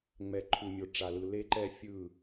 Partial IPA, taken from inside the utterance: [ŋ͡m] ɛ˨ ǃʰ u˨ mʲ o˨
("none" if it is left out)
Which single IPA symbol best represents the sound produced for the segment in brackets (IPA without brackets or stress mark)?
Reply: ŋ͡m